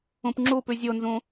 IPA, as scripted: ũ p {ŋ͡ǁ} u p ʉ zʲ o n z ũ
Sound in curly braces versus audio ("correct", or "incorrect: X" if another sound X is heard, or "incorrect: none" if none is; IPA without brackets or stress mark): correct